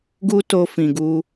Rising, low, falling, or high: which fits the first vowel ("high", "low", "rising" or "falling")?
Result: high